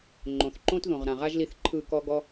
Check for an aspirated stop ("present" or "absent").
present